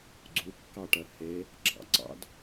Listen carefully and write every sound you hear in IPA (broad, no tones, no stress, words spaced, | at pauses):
ɡ͡ǀukːɑʈɜ he | ɡ͡ǁɑ̰ǀɑ̰d